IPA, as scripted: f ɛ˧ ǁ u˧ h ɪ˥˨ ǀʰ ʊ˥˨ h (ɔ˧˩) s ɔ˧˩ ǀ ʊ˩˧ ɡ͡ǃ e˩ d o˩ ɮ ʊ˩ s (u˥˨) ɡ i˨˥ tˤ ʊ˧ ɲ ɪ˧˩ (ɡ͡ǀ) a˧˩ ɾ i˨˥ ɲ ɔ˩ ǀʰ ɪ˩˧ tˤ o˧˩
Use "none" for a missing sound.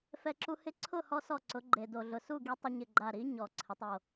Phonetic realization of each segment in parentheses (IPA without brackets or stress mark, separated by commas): ɔ˧, u˥˨, ɡ͡ǃ